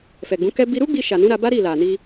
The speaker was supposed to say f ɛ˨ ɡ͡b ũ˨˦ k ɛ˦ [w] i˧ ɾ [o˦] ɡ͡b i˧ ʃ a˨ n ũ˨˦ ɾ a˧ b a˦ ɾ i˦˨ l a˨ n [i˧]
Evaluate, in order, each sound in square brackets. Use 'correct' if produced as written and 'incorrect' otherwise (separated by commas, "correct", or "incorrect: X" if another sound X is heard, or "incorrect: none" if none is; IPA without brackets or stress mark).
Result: incorrect: b, incorrect: u˦, correct